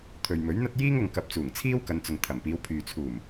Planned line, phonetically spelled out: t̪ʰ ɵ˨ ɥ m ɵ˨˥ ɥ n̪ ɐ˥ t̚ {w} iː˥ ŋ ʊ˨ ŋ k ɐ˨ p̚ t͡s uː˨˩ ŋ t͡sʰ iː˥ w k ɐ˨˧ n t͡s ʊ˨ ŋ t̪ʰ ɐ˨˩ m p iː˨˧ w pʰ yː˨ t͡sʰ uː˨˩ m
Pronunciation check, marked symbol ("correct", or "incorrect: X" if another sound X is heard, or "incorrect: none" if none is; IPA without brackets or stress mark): incorrect: j